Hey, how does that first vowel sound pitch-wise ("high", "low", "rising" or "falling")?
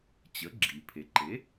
rising